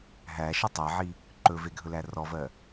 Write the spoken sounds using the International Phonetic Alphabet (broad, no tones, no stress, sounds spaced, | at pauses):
ɦ æ ʃ ə tˤ ɜ ʕ i | ǃ ɵ v e ɡʱ ɵ l æ r ɔ v ɜ